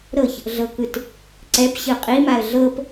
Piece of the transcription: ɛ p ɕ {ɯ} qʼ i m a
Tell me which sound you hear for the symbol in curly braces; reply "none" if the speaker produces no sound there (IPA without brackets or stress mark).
ɯ